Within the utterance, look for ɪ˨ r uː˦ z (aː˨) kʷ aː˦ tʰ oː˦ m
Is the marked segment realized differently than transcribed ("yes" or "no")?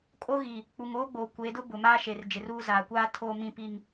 no